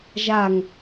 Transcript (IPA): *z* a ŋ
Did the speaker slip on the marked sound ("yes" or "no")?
yes